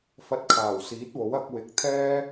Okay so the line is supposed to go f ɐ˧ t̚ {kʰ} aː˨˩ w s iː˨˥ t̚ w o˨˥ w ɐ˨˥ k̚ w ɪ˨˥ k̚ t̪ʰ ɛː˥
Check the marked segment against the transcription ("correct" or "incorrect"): correct